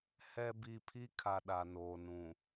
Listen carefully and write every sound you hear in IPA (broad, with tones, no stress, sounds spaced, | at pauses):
h ɛ˨ b i˨ pʰ i˦ kʰ a˨ ɗ a˨ n oː˨ n ũ˨